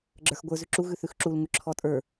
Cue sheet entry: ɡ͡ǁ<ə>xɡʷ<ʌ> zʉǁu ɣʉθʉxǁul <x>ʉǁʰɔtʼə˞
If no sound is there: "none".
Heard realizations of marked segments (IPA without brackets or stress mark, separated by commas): ə˞, ə˞, ŋ